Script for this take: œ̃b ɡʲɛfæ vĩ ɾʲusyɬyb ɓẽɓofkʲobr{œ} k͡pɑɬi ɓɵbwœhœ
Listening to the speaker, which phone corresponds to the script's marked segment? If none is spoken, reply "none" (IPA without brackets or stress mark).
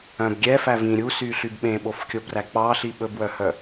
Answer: æ